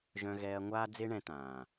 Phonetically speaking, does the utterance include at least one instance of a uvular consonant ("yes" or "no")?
no